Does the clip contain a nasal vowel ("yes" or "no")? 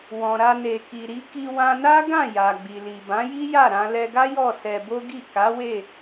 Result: yes